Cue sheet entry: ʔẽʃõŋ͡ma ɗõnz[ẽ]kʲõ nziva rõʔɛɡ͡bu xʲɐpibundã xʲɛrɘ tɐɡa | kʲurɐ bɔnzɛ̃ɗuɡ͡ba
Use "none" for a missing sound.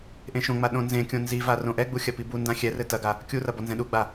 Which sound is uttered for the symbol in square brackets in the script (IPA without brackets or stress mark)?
ẽ